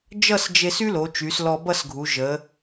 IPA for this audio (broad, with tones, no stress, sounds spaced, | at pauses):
d͡ʒ ʌ˥˧ s d͡ʒ e˧ s y˥ l o˩˧ t͡ʃ y˩˧ s l ɔ˧ b ʌ˥˧ s ɡʱ u˩˧ ʒ ə˩˧